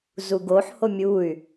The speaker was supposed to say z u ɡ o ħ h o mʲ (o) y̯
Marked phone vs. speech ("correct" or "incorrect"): incorrect